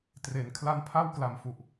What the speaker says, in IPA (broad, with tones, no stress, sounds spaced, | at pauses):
t r e˩˦ n kʰ l a˦˥ n pʰ a˥˩ w k l a˩˦ m f u˨˩ ʔ